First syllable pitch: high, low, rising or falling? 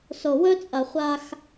low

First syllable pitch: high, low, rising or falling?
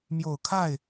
low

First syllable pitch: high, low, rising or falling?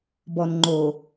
low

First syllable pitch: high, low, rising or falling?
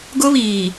high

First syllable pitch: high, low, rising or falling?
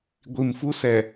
low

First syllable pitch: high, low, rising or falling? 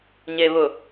low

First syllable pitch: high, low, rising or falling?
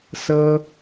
high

